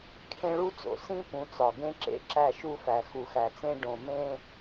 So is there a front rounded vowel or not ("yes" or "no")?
no